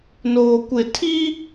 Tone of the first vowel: low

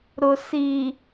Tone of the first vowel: low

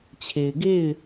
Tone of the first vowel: low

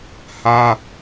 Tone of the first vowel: high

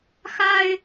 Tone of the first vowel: high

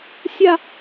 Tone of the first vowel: falling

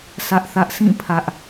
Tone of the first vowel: high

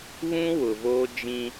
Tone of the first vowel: high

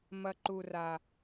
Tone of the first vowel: low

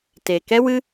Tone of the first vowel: low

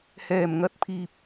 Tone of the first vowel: low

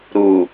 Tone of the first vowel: low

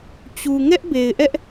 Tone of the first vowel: low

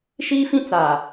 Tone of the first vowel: high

